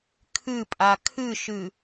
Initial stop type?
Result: aspirated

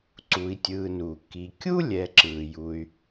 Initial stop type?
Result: click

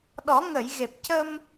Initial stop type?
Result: implosive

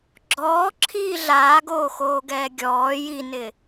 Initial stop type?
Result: click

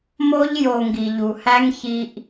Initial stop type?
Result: plain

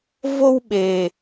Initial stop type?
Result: implosive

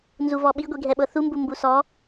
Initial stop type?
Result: implosive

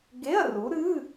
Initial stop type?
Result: plain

